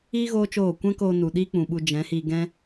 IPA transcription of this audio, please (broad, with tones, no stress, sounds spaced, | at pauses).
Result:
iː˦ ɣ oː˦ t͡ʃ oː˦˨ kʷ ɛ̃˦ k oː˧ n u˨ ɗ iː˦ k͡p ũ˨ ɓ u˧ d͡ʒ ɛ̃˨˦ h i˧ ɡ ɛ̃˦